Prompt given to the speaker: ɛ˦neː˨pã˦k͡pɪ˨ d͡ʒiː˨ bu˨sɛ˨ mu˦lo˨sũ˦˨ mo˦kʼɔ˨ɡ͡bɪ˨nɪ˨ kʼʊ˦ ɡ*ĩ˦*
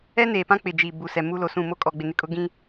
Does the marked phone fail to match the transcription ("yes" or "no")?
no